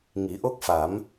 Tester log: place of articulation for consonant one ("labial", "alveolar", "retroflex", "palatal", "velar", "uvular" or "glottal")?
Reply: velar